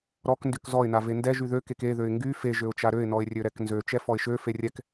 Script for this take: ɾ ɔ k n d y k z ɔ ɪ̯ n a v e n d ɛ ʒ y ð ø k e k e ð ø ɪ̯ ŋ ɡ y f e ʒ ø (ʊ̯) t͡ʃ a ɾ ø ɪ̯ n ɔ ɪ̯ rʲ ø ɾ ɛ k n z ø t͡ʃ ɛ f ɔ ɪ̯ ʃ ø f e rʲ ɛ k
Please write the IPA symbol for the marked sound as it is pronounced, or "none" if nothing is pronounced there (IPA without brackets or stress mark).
ʊ̯